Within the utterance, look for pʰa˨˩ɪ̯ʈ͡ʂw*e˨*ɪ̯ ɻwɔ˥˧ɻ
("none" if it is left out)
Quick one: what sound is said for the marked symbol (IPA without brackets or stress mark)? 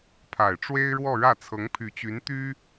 e˥